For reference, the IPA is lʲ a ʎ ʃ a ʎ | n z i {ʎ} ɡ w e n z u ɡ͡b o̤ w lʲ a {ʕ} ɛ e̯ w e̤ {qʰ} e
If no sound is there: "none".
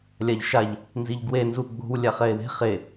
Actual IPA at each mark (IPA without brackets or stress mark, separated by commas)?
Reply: ʎ, χ, χ